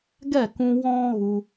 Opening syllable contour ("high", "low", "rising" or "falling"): falling